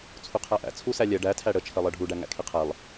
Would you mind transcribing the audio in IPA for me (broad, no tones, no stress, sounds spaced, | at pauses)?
t͡sʰ u qʰ æ ʔ æ̰ t͡sʰ u s æ lʲ ɛ ɖ æ tʰ æ ɽ ə t͡ʃʰ ɜ lˠ ɜ ɖʱ u ɖ æ ŋ æ̰ kʰ i qʰ ɛ lˠ